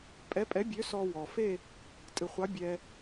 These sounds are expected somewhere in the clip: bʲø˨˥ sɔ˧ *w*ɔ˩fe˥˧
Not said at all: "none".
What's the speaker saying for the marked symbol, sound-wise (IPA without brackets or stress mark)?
w